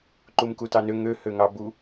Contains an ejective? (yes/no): no